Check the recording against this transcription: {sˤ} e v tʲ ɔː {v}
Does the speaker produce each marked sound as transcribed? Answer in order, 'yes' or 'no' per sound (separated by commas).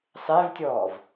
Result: yes, yes